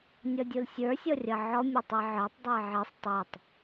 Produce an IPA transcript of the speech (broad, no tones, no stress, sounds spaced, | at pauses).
nʲ ɔ dʲ u l sʲ ə˞ sʲ ɔ rʲ ʌ ʕ ɔ mʲ ɘ tˤ i ʕ ə˞ tˤ dˤ ɘ ɪ̯ ʕ i sˤ tˤ i tˤ